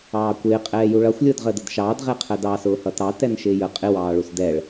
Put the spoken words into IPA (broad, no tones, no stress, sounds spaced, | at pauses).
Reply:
ɑː kʷ ɪː qʼ ɛː j u ɭ ʌ xʷ lʲ ʊː d ʁ əː d ə d ʃ ɑː d ʁ ɛ qʰ ɜ d ɑ s ʊː h ʌ t ɑ t ɛ n ʃ ɪː j ə qʼ ɪ w ɑː ɭ u s d ɛ ɭ